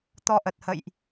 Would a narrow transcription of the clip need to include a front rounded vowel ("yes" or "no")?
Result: no